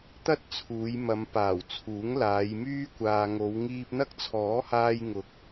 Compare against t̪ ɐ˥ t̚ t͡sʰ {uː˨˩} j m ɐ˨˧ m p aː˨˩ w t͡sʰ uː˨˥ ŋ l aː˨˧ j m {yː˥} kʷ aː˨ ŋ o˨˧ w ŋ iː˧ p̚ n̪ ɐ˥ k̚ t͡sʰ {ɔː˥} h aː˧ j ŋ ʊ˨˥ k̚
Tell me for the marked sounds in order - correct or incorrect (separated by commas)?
incorrect, correct, incorrect